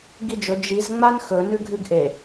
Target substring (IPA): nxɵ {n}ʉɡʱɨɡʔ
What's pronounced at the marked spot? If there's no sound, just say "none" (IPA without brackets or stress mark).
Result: n